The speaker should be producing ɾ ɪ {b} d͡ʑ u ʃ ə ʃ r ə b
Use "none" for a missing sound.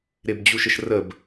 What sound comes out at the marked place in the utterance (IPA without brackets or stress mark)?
b